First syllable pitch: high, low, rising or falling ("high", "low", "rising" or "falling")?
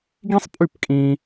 high